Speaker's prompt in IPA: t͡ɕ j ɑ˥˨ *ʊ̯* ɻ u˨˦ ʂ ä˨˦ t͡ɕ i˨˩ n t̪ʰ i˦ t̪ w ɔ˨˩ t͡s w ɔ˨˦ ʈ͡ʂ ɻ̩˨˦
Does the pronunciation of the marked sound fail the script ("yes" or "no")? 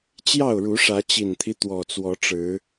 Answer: no